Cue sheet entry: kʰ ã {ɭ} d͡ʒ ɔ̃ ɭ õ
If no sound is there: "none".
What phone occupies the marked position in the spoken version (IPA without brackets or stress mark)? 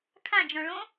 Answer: none